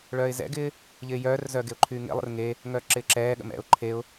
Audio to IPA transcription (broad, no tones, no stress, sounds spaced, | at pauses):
ɭ œː ɪ̯ z ɛ̰ ɡ ɪː | ʎ ɪː j œː r z œ ɡ e ʊ̯ ǃʰ yː ŋ ḛ lˠ ə̰ r ŋ e | ŋ œː ǁ ɪː ǁ ɛː ɠ ə̰ m ɛ̰ ʊ̯ ǃʰ e ʊ̯